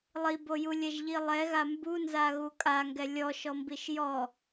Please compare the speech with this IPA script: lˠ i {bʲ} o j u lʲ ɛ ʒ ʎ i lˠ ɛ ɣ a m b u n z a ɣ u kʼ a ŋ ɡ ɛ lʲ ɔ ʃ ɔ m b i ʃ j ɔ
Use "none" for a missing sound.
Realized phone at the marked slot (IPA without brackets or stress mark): b